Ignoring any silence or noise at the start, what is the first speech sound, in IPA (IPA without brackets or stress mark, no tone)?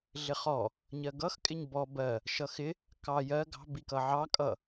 ɮ